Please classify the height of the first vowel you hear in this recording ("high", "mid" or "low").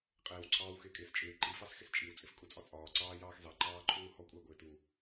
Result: high